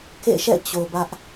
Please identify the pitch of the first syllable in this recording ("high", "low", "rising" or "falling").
falling